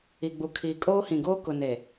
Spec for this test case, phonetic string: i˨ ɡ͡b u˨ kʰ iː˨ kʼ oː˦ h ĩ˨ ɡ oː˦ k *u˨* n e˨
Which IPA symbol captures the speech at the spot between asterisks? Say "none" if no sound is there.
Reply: ʊ˨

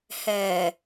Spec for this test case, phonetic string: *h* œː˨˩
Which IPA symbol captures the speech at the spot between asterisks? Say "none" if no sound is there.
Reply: h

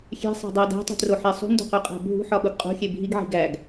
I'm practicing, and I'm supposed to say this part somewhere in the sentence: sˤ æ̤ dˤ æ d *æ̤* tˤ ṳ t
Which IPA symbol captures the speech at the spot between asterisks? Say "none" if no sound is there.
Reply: æ̤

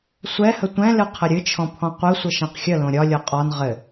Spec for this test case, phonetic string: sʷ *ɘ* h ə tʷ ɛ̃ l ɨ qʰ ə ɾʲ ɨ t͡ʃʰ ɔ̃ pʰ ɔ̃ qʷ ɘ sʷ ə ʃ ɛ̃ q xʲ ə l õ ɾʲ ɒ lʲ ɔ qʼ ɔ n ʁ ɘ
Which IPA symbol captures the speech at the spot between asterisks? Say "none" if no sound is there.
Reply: ɛ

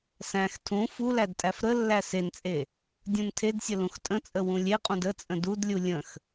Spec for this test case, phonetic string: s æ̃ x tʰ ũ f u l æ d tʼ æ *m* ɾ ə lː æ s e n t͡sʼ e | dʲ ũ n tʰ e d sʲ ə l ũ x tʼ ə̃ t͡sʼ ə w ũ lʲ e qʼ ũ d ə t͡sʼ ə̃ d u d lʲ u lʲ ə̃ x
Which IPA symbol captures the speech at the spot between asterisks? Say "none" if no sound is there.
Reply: f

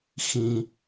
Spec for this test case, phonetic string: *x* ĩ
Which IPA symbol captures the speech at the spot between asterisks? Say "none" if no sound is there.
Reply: x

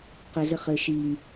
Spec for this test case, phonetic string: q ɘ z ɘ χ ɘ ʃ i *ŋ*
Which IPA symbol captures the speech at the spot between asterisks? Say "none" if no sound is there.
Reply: ŋ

